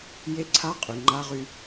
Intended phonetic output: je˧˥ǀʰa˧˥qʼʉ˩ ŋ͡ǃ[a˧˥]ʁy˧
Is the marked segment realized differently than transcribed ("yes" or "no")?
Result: no